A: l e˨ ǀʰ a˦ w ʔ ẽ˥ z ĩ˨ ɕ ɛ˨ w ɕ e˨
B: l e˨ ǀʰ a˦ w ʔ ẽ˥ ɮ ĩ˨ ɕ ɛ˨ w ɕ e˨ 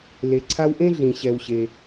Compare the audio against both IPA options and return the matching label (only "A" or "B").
B